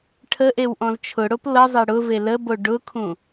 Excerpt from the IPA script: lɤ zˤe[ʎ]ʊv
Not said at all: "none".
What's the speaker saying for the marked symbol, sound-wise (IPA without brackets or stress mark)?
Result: ɽ